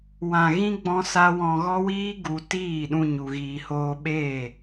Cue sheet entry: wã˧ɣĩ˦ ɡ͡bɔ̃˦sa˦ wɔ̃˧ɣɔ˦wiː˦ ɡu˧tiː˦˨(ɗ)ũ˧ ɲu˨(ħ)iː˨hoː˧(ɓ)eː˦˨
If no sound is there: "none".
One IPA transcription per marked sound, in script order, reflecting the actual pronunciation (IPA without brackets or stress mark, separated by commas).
ɗ, ɣ, ɓ